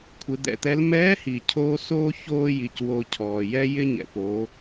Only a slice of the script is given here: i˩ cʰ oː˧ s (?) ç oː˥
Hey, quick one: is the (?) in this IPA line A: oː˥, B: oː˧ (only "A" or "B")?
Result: A